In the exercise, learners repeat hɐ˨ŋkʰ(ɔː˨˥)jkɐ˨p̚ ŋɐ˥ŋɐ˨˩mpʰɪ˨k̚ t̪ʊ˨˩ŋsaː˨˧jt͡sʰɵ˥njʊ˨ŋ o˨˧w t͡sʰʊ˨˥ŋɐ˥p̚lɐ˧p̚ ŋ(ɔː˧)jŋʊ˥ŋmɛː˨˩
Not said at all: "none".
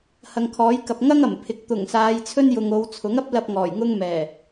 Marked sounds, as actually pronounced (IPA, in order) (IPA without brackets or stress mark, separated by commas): ɔː˨˥, ɔː˨˩